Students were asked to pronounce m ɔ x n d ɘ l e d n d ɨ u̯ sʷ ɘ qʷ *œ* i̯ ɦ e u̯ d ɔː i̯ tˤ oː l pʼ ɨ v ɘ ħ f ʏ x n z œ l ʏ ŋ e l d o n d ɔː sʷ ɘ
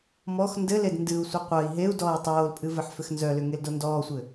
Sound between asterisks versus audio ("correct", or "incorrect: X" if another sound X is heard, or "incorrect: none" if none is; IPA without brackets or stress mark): correct